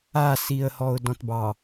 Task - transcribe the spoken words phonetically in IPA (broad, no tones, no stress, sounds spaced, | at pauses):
a s i ə̯ h ɔ ʊ̯ d ɔ̃ t b ɑ